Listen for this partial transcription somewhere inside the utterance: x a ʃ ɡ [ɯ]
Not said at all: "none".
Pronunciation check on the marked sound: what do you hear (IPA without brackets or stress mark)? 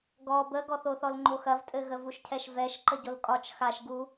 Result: u